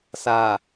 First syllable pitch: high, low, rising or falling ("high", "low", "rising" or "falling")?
low